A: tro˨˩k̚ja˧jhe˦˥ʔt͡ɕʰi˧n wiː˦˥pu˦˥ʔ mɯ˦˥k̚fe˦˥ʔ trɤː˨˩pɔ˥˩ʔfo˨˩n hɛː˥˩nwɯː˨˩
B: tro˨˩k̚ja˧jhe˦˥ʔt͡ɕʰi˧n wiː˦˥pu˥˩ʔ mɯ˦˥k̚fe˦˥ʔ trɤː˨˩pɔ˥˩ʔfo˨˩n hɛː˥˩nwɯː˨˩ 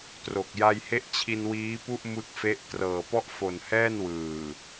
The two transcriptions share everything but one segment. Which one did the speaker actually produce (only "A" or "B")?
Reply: B